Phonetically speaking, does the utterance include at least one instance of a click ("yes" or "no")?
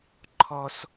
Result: yes